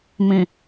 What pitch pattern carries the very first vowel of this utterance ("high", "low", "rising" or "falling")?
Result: low